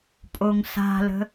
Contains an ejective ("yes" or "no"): yes